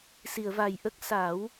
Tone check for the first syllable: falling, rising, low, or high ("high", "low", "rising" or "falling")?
low